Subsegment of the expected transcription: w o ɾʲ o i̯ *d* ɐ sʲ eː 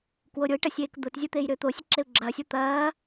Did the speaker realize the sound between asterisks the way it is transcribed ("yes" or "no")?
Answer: no